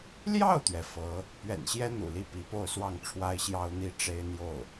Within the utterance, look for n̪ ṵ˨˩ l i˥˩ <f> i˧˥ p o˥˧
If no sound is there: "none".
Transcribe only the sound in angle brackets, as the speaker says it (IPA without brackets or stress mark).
p